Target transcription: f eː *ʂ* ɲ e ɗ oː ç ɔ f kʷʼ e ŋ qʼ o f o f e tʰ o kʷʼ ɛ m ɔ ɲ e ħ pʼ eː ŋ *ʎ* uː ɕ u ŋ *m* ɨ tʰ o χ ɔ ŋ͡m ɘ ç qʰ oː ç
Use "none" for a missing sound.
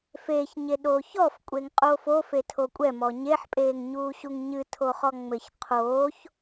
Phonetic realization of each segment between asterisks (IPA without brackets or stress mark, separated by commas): ç, ɲ, ɲ